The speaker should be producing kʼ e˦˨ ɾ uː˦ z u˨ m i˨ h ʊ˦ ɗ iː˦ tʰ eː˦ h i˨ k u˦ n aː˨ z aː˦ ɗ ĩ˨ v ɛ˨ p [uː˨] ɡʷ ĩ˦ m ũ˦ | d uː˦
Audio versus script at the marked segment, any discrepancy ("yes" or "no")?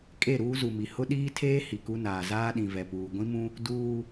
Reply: no